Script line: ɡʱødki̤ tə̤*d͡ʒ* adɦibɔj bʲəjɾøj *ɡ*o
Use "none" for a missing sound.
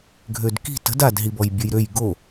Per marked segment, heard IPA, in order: d, ɡ

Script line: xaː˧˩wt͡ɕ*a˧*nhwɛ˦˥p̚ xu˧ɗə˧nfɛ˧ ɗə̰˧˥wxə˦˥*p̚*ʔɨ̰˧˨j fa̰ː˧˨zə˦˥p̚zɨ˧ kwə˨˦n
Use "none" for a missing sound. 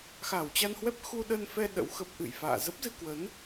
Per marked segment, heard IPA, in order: a˧, p̚

